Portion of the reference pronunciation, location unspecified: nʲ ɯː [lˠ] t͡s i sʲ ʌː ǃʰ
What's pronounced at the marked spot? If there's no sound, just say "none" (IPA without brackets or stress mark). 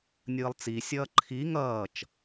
lˠ